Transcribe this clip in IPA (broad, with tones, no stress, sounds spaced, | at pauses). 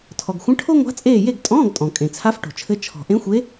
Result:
tʰ ɔ˩ ɡ xʷ ə̃˧˥˧ ʈʰ o˥ ŋʷ a̤˧˥ t͡sʼ eː˦˨ j e˦˨ ɡ tʼ ɔ̃ː˧˥˧ ɡ tʼ ɔ̃˩ kʼ ẽ˩ t͡sʰ a˧˥ f ʈ o̤˩ t͡ʃʰ ɘ˧˥ t͡ʃʰ ɔ̤˩ ʔ ẽ˧˥ xʷ e˧˥